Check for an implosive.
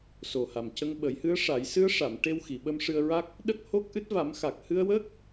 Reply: present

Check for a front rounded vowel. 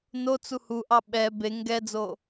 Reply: absent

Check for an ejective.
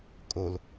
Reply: present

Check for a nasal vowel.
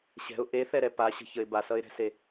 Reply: absent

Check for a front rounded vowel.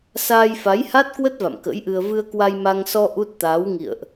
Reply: absent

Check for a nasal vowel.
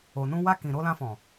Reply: present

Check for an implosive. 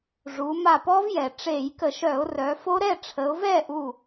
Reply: absent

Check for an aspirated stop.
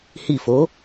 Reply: absent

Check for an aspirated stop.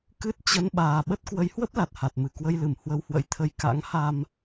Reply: present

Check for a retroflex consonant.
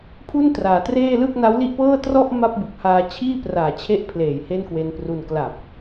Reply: absent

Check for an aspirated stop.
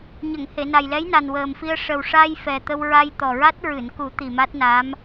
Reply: absent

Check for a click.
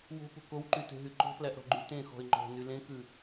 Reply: present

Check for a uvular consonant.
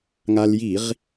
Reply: present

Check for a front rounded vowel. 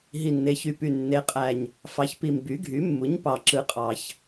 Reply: present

